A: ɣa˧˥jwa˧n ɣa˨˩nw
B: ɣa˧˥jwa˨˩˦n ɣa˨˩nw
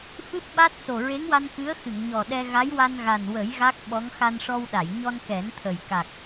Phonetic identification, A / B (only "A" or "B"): A